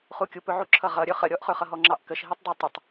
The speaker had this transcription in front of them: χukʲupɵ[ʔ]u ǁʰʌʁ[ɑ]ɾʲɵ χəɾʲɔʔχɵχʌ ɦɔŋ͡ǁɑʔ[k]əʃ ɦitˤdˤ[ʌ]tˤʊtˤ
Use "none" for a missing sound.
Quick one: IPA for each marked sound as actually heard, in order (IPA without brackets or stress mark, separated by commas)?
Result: ʕ, ʌ, k, ɑ